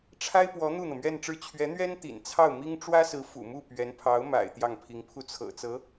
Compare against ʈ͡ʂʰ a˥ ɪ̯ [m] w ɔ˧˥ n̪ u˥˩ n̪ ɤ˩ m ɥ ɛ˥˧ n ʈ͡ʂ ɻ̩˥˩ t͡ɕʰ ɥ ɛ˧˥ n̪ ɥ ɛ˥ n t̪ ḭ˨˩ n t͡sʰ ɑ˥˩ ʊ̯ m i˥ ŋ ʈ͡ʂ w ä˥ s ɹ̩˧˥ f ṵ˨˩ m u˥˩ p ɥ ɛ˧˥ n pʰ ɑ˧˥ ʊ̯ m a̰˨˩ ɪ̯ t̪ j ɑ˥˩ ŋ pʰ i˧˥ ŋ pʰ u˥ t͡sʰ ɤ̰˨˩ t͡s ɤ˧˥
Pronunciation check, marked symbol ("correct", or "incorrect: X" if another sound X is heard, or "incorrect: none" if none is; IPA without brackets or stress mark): incorrect: p